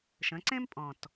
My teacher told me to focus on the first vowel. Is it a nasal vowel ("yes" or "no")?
yes